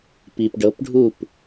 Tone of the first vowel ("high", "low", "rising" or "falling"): low